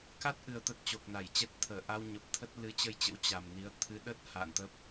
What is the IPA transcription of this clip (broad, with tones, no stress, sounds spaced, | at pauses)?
k a˦˥ t̚ ʔ ɨ˨˩ ə̯ t̪ ə˦˥ t̚ t͡ɕ o˨˩ k̚ n a˧˩ j t͡ɕ ɛ˦˥ t̚ t̪ʰ əː˧˩ ʔ a˧ w ɲ ə˨˩ p̚ t̪ʰ ə˦˥ t̚ l ɨ˨˦ t͡ɕ ə˧ j t͡ɕ ə̰˧˥ w t͡ɕ a˨˩ m n i˨˦ ə̯ t̪ʰ ɨ˨˦ ɗ ə˦˥ t̚ h a̰ː˧˨ n t̪ ə˦˥ p̚